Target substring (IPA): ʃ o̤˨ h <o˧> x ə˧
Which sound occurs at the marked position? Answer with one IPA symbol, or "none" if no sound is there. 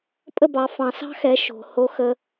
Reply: o˧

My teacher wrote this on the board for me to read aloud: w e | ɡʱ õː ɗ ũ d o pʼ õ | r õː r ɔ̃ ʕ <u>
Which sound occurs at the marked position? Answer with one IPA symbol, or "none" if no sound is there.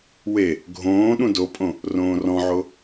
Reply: o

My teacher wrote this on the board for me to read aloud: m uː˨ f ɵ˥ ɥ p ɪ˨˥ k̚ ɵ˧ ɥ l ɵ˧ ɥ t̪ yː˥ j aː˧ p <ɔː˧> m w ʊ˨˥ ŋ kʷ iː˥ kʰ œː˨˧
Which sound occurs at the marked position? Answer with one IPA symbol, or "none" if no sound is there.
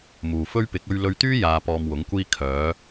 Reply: ɔː˧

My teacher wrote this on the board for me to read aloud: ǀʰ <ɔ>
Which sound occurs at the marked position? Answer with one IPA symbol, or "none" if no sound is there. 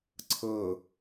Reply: ɤ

